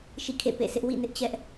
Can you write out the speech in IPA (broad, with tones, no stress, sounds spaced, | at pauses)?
ʃ ḭ˦˨ kʰ ḛ˦˨ p ḛ˦˨ s ɪ˦ ʔ w ḭ˦˨ n ɪ˦ ʔ t͡ɕ ɛ˦ ʔ